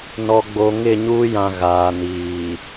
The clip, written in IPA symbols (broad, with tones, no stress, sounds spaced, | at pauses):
n ɔ˨ ɡ͡b o˨ ŋ ɪ˦˨ ɲ uː˦ j ã˨ ɣ aː˨ n iː˨